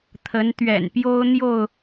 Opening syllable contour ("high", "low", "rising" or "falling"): rising